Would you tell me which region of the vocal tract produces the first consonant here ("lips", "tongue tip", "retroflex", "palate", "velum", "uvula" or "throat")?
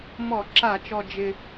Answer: lips